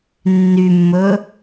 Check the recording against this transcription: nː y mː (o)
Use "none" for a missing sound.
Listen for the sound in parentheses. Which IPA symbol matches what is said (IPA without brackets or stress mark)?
ɵ